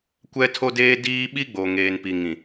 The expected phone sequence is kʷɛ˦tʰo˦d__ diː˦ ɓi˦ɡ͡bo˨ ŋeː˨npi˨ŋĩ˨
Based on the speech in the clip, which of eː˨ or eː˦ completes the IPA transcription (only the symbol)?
eː˦